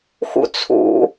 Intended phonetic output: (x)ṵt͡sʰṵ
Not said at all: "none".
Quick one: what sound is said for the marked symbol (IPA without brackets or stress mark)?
x